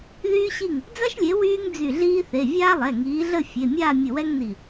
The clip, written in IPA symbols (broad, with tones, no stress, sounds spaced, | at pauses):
ð yː˥ ɕ i˥˩ ŋ | d͡z a˥ ʃ lʲ e˨˦ w yː˥ ŋ d͡z y˧˩ ɮ iː˥ θ e˩˧˩ vʲ aː˥ lˠ ɛ˩˧˩ ŋ iː˨˦ ɮ ə˥˧ fʲ e˩˧˩ mʲ aː˥˧ mʲ ə˧˩ w ɛ˥ ŋ n i˧˩